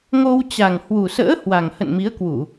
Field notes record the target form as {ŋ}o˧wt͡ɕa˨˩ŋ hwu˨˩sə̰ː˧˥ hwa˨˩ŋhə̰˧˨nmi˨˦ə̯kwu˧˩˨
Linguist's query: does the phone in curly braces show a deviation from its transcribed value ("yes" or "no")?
no